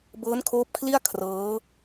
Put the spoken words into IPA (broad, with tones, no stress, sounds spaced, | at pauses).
b ɤː˦˥ n kʰ oː˦˥ p̚ kʰ l i˥˩ a̯ kʰ r ɤː˦˥